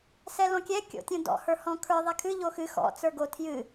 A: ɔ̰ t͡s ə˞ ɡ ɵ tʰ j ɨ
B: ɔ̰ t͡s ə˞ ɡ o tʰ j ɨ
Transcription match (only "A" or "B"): B